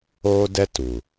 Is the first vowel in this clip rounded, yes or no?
yes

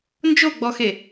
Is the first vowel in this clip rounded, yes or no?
yes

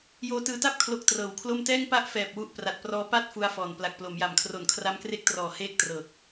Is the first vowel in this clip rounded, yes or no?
yes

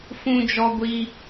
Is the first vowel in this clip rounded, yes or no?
yes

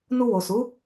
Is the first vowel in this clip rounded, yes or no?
yes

